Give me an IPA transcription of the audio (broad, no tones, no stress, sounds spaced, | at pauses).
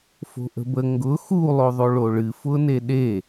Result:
f o̤ ʔ ə̤ b ə ŋ ɡ ʊ x u lˠ o ðˤ o ɭ o ɭ ɨ f ʊ n e ɗ e